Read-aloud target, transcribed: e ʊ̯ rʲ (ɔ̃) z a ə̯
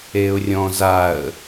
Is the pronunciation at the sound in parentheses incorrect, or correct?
correct